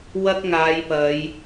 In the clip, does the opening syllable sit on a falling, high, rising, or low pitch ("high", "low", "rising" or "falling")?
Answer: high